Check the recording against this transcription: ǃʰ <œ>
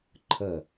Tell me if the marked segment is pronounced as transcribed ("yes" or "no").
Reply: no